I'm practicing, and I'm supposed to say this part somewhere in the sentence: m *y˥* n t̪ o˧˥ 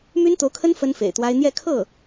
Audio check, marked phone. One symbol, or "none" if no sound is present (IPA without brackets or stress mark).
y˥